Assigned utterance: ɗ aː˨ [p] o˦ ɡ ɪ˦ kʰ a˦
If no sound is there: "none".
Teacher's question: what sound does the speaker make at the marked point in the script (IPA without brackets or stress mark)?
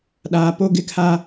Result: p